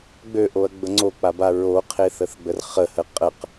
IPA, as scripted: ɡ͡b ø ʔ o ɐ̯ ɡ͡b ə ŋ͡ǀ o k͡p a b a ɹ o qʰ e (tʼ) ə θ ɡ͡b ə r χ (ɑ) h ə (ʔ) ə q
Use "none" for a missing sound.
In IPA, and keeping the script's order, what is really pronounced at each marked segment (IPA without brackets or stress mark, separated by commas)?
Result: θ, ə, qʼ